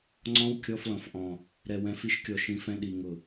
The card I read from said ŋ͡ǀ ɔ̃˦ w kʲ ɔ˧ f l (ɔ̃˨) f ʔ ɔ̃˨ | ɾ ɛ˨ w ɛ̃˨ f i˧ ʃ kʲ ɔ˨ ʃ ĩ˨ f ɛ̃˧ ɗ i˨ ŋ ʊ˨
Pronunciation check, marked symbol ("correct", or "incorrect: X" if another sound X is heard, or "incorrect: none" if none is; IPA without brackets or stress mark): correct